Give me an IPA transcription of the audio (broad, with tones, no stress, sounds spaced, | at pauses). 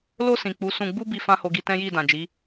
l o˧ s ĩ˨ k͡p u˨˦ s ũ˧ ɡ͡b u˦ b i˧ f ã˦ h o˧ ɡ i˧ t ɛ̃˦ j i˦˨ d ã˨ d͡ʒ i˨˦